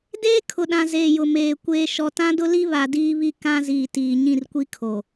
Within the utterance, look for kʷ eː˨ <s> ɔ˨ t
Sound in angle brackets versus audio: incorrect: ʃ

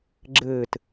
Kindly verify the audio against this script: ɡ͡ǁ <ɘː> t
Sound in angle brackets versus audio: correct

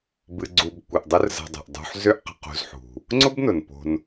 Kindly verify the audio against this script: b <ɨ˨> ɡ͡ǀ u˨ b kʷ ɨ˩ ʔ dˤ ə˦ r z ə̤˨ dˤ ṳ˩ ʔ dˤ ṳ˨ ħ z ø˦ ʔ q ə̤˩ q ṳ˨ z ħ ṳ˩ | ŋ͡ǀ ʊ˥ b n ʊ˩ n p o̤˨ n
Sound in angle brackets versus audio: correct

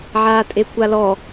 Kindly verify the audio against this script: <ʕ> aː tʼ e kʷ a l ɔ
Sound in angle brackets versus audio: correct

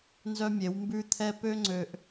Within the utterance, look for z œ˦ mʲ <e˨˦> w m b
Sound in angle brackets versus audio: correct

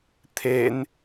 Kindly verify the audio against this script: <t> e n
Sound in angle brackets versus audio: incorrect: t̪ʰ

